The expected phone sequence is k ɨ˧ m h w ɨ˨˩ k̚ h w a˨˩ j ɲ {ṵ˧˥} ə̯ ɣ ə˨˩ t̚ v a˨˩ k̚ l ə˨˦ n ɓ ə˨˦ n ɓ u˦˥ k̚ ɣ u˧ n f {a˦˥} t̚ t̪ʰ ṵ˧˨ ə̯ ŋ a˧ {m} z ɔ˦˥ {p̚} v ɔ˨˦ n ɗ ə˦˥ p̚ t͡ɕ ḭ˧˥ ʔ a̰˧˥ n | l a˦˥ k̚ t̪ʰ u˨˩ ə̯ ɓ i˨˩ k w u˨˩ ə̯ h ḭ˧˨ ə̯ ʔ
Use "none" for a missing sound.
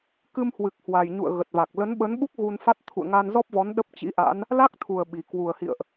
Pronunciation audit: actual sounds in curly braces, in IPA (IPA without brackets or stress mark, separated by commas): ṵ˧˨, a˦˥, n, p̚